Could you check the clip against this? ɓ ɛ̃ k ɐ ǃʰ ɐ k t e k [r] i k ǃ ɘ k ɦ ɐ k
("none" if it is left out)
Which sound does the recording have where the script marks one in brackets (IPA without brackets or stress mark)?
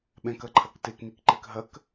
n